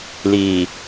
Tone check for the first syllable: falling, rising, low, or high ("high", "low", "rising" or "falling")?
low